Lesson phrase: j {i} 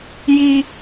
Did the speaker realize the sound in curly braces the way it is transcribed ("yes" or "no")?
yes